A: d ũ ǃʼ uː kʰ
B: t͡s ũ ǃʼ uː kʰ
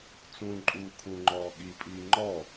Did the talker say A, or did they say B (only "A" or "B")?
B